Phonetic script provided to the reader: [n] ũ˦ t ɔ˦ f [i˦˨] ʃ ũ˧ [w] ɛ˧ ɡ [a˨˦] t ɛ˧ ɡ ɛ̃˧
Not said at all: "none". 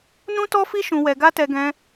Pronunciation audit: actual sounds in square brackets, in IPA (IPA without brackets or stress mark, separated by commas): n, i˦, w, a˦